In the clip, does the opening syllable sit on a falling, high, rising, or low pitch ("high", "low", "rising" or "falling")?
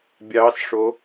rising